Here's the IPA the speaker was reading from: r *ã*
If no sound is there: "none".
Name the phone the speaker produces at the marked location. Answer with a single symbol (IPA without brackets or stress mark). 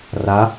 a